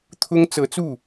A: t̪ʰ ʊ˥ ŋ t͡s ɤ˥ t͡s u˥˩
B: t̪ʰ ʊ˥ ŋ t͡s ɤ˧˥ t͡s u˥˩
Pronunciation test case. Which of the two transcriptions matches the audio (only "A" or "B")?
B